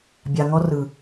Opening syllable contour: low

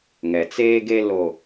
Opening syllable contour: low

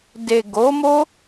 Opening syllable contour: low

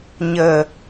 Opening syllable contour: low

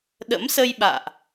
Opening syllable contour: rising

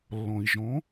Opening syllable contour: low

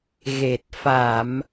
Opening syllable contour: low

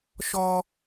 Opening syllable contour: high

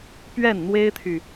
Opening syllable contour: falling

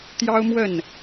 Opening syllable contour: high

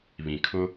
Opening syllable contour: low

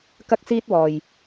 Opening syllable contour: high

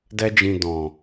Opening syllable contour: high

